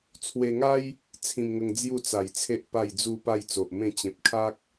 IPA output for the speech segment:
t͡sʰ w e˧ ŋ a˦ j | t͡sʰ ĩ˧ m ŋ ə˧ ŋ d͡z j u˥˧ t͡s a˨˩ j t͡sʰ e˦ ʔ p a˥˧ j d͡z u˥˧ p a˥˧ j t͡s o˨ ʔ m ẽ˥˧ t͡ɕ ẽ˨ p̚ kʰ a˦ k̚

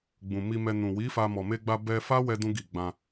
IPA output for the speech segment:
ɡ͡b ũ˨ m i˧ m ɛ˧ n ũ˨ w i˨˦ f a˧ m ɔ˨ m e˧ ɡ͡b a˧ b ɛ˧ f a˦ w ɛ˦ d ũ˦ ɡ i˦˨ ɡ͡b ã˧

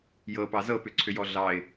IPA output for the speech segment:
j ɤ p ɑ z ɤ p ʏ ǀʰ ʏ j ɔ ɮ ɑ ɪ̯

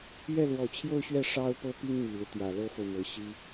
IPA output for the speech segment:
ɥ ɛ˥˩ l w ɔ˨˩ t͡ɕʰ j o˥˧ ʊ̯ ɕ ɥ ɛ˥˩ ʂ ɑ˥ ʊ̯ p ɤ˥ p i˥ ŋ m i˨˩ l u˦ t̪ j ä˨˩ l ɤ˥ f o˨ ʊ̯ m ɤ˧˥ ɕ i˥

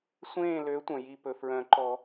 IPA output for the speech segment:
sʷ ẽː˦˨ l ø˨˦ tʷ œ̃˩ j i˦˨ p ɵ˩ f ɹ œ̃˨˩˦ ǃ ɔ˨˩˦

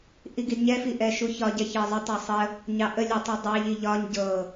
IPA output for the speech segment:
ʔ i ɡ i d ɲ ɛ f i ʔ ɛ ʃ u ç ɒ ɟ ɛ ç ɤ zˤ ə tˤ ɛ sˤ ə | ɲ ɑ ʔ ə lʲ e tˤ u dˤ ɑ ʎ i ʎ ɒ ɲ ɟ ɤ

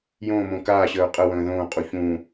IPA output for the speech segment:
j õː m õː k aː ɕ əː ʊ̯ qʼ ə w ə̃ː ð õː qʼ u ç ũː

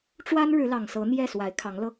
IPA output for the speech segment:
ʈ͡ʂ w a˥ n ɻ ɻ̩˧˥ l ɑ˨˩ ŋ s ɤ˧˥ n̪ j ɛ˥˩ s w a˧˥ ɪ̯ kʰ ɑ˧˥ ŋ l ɤ˧

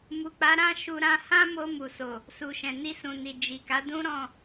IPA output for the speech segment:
m u˨ k͡p a˨˦ ɾ ã˦ ʃ u˧ ɾ ã˧ h ã˦ m o˧ m u˨ s o˨ | s u˨ ʃ ɛ̃˨ n i˧ s ũ˨ n i˨ d͡ʒ i˨ k a˨˦ d ũ˦ ɾ ɔ̃˦˨

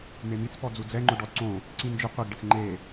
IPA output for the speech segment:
m e m i t͡s p ɔ d͡z u d͡z ɛ ŋ͡ǃ ʊ ɖ ɔ d ǀ õ | ǀ ĩ n d͡ʒ ɪ qʷ i ɡ ɖ ɪ t͡s ŋ͡ǃ e

